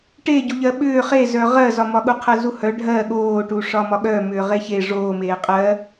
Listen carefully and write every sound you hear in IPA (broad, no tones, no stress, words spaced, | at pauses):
ʈeɟuʎɜ ɓʏː χezœ ʁɜzɒmɒ ɠuqʰɜzuhœ ɖʱɜ ɠoːʈuʂɒ mɒɠœ mʏːʁeçe ʐoːmeː qʼɜ